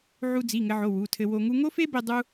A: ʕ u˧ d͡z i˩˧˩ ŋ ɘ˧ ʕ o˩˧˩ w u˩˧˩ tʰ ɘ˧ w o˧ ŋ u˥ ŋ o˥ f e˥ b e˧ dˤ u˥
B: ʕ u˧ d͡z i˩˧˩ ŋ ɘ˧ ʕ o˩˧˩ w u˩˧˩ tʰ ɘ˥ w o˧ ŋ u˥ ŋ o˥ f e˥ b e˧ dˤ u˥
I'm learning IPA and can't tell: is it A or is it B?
A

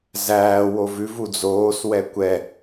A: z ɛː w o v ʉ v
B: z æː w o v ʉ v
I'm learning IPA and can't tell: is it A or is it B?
B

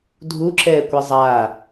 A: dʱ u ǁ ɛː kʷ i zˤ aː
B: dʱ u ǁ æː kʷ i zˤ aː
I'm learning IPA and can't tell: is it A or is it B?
A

